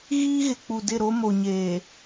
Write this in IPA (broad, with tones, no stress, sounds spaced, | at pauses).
ɣ iː˦ ɣ ɪ˨ k͡p u˨ d ɪ˦˨ ɾ o˦ m o˨ ɲ eː˨